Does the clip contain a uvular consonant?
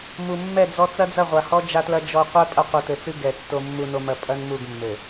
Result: yes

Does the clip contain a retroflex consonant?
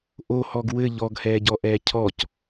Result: no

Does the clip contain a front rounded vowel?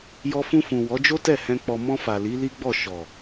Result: no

